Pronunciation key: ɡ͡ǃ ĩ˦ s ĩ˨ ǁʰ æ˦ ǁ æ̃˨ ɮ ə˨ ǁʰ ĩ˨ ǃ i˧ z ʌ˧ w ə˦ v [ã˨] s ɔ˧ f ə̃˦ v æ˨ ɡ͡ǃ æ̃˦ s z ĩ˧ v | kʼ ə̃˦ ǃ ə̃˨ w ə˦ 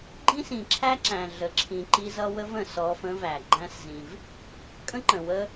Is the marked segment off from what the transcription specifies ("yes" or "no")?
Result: yes